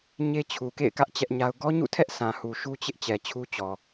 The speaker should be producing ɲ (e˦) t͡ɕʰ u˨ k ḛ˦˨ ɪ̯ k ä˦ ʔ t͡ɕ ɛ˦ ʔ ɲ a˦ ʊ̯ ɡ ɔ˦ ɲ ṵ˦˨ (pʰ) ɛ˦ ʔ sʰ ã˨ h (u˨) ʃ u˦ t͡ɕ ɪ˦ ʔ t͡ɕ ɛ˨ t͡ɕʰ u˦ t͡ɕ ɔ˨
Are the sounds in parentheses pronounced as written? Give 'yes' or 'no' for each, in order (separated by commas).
yes, no, yes